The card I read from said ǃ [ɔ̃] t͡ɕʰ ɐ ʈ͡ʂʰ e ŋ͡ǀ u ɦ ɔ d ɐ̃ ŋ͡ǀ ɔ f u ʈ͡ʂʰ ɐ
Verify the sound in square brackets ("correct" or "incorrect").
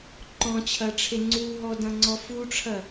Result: correct